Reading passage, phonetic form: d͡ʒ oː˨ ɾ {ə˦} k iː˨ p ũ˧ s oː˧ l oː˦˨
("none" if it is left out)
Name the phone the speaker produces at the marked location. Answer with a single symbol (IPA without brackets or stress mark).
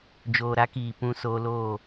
a˦